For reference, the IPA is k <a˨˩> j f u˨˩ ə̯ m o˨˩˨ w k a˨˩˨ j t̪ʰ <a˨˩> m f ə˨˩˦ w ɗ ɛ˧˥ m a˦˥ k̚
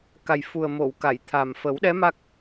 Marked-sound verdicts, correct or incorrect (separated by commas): correct, correct